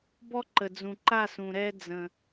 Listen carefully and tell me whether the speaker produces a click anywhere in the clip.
yes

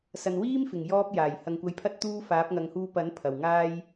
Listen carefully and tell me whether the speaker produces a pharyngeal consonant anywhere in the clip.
no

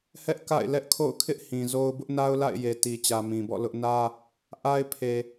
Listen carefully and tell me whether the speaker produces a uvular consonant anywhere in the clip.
no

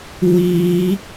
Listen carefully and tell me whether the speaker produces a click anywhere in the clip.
no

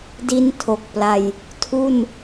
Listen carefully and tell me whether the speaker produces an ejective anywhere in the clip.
no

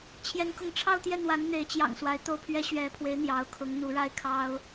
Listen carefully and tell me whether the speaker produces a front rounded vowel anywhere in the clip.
no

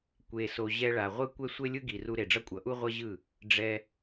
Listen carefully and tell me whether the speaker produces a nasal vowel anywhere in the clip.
no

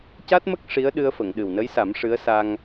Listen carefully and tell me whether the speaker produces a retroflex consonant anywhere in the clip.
yes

